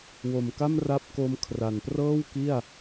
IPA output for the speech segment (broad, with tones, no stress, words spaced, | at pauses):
wo˨˩mka˥˩m ra˦˥p̚ko˧m kʰra˨˩nprɤː˥˩w ki˥˩a̯